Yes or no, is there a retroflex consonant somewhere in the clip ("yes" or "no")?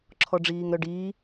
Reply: yes